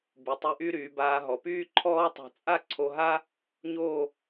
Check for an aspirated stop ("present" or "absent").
present